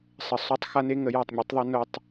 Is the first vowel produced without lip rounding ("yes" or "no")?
yes